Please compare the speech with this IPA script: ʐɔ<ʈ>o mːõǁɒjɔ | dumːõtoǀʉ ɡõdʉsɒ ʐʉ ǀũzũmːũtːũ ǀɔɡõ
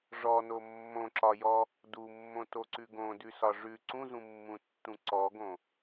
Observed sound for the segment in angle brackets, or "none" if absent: n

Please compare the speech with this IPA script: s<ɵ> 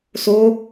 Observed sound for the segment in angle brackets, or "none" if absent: o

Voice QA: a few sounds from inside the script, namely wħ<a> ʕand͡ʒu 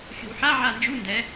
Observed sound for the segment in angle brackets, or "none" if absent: a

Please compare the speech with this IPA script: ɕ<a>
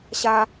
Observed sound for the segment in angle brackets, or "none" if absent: a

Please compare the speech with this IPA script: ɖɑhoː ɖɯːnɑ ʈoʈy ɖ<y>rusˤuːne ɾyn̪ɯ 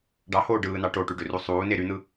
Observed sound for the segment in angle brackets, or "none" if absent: ø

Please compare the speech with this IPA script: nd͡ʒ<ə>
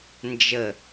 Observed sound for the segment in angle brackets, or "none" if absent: ə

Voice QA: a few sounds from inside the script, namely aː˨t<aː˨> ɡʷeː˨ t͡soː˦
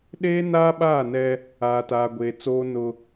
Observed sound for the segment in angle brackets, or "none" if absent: aː˨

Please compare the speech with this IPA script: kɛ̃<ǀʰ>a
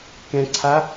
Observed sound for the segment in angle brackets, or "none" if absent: ǀʰ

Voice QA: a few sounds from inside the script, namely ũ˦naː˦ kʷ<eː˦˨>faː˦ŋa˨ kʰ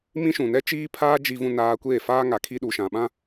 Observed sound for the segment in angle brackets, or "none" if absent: eː˦˨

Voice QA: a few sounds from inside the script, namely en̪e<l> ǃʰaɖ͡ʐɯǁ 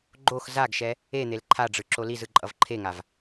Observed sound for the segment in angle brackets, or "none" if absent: l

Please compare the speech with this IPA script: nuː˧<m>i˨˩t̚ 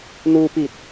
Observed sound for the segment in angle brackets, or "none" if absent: p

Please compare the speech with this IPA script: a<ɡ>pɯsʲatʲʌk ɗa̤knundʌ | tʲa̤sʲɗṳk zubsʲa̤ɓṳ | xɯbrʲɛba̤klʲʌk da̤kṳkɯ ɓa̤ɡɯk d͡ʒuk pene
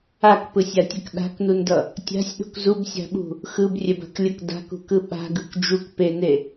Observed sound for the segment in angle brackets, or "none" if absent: k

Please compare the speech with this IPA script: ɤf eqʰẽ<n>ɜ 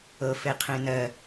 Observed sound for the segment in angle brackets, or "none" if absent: n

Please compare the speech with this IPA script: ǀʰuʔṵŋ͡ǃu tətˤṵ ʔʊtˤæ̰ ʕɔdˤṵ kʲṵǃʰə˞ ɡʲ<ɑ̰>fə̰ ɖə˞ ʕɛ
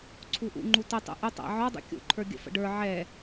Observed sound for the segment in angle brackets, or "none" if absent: ə̰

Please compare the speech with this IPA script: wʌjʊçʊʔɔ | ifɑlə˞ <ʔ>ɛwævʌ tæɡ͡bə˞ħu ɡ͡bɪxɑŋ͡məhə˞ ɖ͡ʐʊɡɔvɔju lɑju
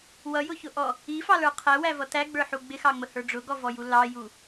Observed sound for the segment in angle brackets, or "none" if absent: qʰ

